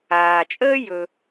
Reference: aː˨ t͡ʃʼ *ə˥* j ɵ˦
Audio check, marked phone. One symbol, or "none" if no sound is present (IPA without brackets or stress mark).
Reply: əː˥